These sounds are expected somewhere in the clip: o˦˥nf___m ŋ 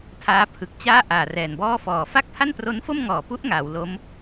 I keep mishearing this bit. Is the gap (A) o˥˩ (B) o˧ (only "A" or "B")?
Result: A